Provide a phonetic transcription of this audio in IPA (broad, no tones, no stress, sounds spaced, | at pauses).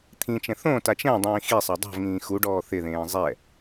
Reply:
t̪ʰ ĩ t͡ʃ ɛ̃ θ õ t a t͡ʃ ɛ̃ dˤ ĩː x i sˤ a dˤ o̤ v ŋ ĩː x u ɖ ɔː θ ɪ ð ẽː zˤ ɛ